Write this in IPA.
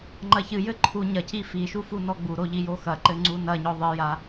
ŋ͡ǃ ɐ ç ɨ j ɘ ǃʰ u ɲ ɐ c i f i ʃ u f u n ɔ ɡ͡b u ɾ o ʎ i j o x ɐ ǃ ɘ ŋ͡ǀ u n ɐ ɲ ɔ ðˤ ɨ j a

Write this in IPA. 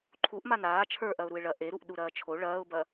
ǃʰ u ʔ m a n aː t͡ʃʰ ə˞ ʔ ɐ ʊ̯ ɾ u ɪ̯ ɭ ɐ ʔ e ɾ u ʔ ɗ u ɾ ɐː t͡ʃʰ o ɭ ɐː ʊ̯ b ɐ

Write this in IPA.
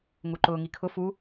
ŋ u ǃ ʊː ŋ i kʰ ʊ f u

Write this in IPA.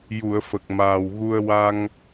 j u˨˩˨ ə̯ f ə˨˩ k̚ m aː˨˩ w ɣ u˧ ə̯ w a˧ ŋ

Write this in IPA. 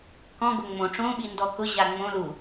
k ɔ̃ ɡ o ŋ͡m õ ʈ͡ʂ õ ɓ i n d ɔ k ʊ ʑ a ŋ͡m õ l u

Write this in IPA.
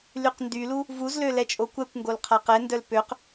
l y q n d y l u | v u z l ø l ɛ t͡ʃʼ o kʷ ɛ kʷ ŋ ɡ o l qʰ a q ɛ n d œ l p ø q

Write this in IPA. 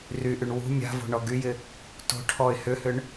r y ʔ y ɳ w ṳ mʲ a̤ v o̤ ɳ ɔ ɡ y j ɪ | t o̤ ʈʰ ɔ ɪ̯ h ʏ h ʏ ɳ

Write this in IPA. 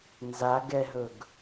n z a ɡ ɛ ɦ ɵ ɡ

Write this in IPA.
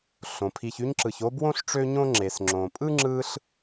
ɬ õ˩ pʰ i˨ ç y˦ ɲ ǁ ɯ˨ ç o˥ b w õ˥ ɬ ʈ͡ʂ ø˦ ɲ õ˦ ŋ͡ǁ e˩ s ŋ͡ǁ õ˩ pʼ ɯ˥ ŋ͡ǁ ɯ˦ ɬ

